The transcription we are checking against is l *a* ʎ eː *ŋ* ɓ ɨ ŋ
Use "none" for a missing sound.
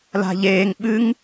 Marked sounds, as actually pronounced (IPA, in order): a̤, ŋ

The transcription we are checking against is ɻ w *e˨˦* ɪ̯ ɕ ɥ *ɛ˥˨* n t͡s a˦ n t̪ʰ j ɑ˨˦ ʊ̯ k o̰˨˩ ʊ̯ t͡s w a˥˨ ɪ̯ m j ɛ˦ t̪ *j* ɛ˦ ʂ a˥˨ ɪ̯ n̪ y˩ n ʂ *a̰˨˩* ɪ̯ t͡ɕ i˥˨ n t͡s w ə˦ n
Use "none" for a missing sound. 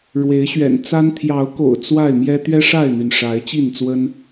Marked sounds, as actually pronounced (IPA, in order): e˨˦, ɛ̰˨˩, ɥ, a˨˦

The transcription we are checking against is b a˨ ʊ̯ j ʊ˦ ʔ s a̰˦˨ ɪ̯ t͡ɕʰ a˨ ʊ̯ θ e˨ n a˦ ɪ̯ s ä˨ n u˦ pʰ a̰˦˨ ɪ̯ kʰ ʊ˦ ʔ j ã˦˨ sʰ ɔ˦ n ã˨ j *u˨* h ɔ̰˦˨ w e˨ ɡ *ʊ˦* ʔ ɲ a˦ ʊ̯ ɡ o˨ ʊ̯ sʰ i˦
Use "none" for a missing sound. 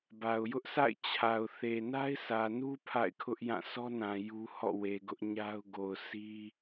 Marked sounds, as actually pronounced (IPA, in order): u˦, ʊ˦

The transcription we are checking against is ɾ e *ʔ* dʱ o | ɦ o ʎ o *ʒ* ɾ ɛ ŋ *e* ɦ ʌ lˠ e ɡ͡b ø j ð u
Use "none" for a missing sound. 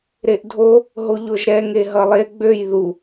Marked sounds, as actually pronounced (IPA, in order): ʔ, ʒ, e

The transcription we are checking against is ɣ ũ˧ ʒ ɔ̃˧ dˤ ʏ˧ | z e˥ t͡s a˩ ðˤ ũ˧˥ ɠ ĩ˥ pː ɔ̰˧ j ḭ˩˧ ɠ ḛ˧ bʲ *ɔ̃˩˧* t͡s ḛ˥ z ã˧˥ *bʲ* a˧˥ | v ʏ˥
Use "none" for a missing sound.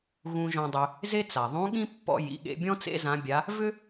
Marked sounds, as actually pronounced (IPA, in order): ɔ̃˥, bʲ

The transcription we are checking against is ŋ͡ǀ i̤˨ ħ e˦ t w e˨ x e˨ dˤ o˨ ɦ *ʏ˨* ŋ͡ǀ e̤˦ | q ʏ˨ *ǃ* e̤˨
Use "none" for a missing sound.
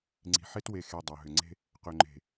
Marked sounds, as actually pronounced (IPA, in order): ʏ˨, ŋ͡ǃ

